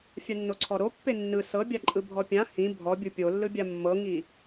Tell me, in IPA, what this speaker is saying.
fʲ a nː o ǀʰ ɔ ɾ o pː e nː ɯ s ɤ bʲ a ǃʼ ɯ bʱ ɔ pʲ ã h ĩ bʱ ɔ bʲ u pʲ o lː ɯ bʲ a mː ɤ ŋ i

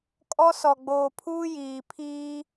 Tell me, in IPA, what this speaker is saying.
kʼ ɔ˦ s ɔ˨ ɡ͡b oː˨ pʰ uː˦ j iː˨ pʰ iː˦

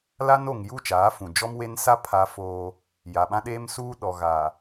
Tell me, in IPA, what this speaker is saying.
l a˦ n o˨ ŋ j u˦˨ t͡ʃ aː˨˦ f ũ˨ d͡ʒ ɔ˦ m w e˦ n s a˦ pʰ a˦ f oː˦ | j a˨ ɓ ã˦ ɗ eː˦ m s uː˦ ɗ ɔ˨ ɣ aː˨

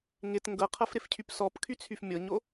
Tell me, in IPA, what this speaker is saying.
ŋ ɪ t ŋ ɡ ɤ qʰ ɤ f ɾ ɪ f cʰ y p s ɔ p kʰ y t͡sʰ y f mʲ ɤ ɲ o

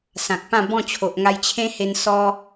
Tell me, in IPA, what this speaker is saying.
s ã˨ k̚ p ã˥˧ b ɔ̃˥˧ t͡ɕʰ o˨ ʔ ŋ a˧ j t͡ɕʰ ẽ˦ h e˧ n s ɔ˦

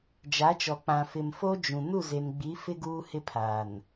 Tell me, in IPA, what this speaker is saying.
d͡ʒ a˨˦ t͡ʃ ɔ˨ k͡p ã˨ f ɪ˨ m f o˦ d͡ʒ ũ˨ n u˦˨ z e˨ n ɡ͡b i˨˦ f ɪ˦ ɡ uː˦ h ɪ˦ pʰ aː˨ n

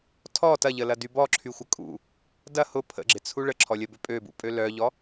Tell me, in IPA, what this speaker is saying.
tʰ ɔ t ɐ ʎ ə l ɐ d y b ɔ ǁʰ y xʷ ə kʼ ṵ | d ɐ h ʊ pʰ ə̰ ɡ͡ǁ ɪ t͡sʰ u ɭ ə ǁʰ ɔ lʲ ɐ b ʏ pʼ ø b ṵ pʼ ø l œ ʎ ɔ

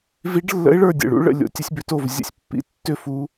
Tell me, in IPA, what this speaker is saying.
v i˧˥ ɖ lː ə̰˧˥ ɪ̯ ɭ ə˞˥˨ dʲ ə̰˨˩ ɭ ṵ˧˥ ɭ ə̰˥˨ lʲ o̰˧˥ tʲ ə˧˥ sʲ b ʏ˧˥ t o˥˨ v zʲ ə̰˥˨ sʲ pː ḭ˥˨ tː ʏ˥˨ f u˧˥

